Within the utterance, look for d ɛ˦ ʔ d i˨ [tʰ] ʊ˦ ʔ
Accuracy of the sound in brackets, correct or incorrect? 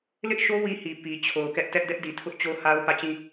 correct